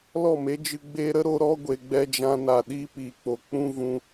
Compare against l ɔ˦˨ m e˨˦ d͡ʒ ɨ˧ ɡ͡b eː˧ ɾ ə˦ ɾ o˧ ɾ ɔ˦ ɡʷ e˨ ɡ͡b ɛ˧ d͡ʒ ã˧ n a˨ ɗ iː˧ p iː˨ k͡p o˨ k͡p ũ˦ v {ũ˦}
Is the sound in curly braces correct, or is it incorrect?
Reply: incorrect: ũ˧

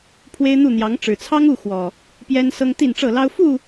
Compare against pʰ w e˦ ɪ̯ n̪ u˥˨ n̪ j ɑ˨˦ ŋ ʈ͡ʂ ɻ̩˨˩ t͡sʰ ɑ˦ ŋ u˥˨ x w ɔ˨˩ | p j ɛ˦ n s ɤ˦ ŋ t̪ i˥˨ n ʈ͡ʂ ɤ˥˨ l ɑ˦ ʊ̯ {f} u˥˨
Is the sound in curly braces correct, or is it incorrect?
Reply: correct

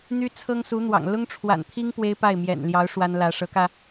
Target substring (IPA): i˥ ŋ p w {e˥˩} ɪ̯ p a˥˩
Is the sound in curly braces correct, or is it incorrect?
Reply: incorrect: e˥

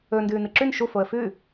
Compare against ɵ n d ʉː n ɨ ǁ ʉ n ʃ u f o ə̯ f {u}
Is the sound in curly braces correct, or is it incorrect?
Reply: incorrect: ʉ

